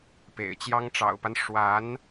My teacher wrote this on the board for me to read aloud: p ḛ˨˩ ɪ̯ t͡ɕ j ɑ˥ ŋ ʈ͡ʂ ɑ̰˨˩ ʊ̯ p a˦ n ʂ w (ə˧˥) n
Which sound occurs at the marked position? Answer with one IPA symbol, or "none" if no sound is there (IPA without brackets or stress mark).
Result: a˧˥